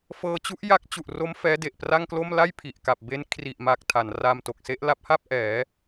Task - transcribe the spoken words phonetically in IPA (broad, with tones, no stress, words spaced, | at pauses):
fɤː˧t͡ɕu˦˥ʔ ja˦˥k̚t͡ɕu˨˩ʔro˦˥m fɛː˦˥de˨˩ʔpra˥˩ŋklo˥˩m la˥˩j pʰi˨˩ʔka˨˩p̚ be˦˥n kʰri˨˩ʔma˨˩k̚ tʰa˩˦nraː˧mto˨˩k̚se˦˥ʔ la˦˥p̚ha˥˩p̚ ʔɛː˩˦